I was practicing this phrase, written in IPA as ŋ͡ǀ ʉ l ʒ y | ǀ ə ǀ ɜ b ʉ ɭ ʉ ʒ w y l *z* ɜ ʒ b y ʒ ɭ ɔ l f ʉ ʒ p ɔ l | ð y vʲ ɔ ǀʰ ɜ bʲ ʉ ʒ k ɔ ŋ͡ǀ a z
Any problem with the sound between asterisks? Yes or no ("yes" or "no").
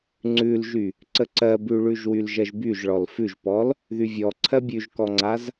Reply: yes